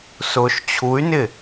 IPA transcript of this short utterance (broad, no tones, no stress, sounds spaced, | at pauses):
s ʊː ʃ t͡ɕʰ u y̯ n ɪ